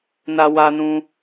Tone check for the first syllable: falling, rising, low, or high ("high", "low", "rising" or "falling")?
high